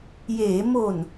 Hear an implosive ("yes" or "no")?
no